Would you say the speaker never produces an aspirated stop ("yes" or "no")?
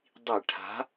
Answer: no